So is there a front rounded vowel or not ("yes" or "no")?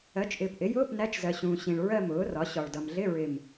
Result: no